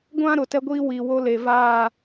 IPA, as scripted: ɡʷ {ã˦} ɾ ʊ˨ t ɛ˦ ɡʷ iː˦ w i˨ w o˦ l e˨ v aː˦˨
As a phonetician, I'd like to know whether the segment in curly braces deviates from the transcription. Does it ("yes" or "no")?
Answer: no